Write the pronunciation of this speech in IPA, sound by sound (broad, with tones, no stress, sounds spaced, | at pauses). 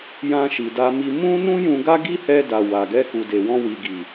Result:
j ã˧ ʃ i˨ d a˧ m i˧ m ũ˦ n ũ˦ j ũ˧ ɡ a˦ ɡ i˦ h ɛ˧ d a˨ w a˨ ɡ ɛ˧ k u˨ d e˨ w ɔ̃˧ w i˨ ɡ i˨